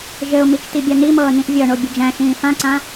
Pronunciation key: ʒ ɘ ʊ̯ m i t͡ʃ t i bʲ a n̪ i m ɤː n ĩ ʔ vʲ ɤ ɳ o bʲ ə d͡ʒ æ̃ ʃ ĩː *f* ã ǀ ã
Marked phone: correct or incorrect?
correct